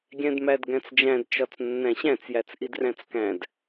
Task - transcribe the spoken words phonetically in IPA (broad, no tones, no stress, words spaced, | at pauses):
ɡʲæ̃dmædɡæ̃t͡sd͡ʒæ̃d t͡ʃɒt͡snːæ̃ɕæ̃t͡s jæt͡sʔidræ̃t͡skæ̃d